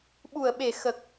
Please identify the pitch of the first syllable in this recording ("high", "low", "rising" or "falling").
low